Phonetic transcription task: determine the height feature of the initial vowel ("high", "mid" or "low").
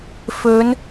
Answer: mid